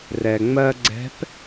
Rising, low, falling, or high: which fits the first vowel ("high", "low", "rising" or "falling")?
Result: low